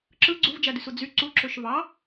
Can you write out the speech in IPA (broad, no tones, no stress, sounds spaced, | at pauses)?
ǁ ɯ ɡ͡ǀ u v d͡ʒ æ d y s u d͡z y ǀ u ǁ ø ʃ v ɑ